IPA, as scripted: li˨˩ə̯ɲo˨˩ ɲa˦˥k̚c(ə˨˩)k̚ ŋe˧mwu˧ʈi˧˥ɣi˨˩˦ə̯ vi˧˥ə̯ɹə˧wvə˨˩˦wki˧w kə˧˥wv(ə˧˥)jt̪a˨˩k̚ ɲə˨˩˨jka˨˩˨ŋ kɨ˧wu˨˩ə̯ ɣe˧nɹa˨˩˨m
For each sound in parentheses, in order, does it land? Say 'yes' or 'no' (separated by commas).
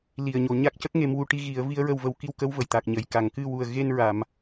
no, no